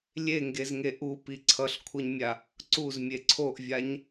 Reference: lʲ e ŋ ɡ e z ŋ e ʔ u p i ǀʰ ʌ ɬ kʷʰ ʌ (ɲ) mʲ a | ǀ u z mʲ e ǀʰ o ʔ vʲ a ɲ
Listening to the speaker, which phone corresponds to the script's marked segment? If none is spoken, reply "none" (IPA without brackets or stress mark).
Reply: ɲ